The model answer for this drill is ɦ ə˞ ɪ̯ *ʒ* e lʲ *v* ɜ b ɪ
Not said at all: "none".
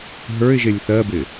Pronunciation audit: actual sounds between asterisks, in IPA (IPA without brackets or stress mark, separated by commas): ʒ, θ